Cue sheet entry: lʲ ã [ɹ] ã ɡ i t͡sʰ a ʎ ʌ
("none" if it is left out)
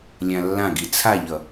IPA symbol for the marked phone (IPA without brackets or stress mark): lː